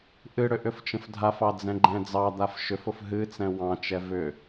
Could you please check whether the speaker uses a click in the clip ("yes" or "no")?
yes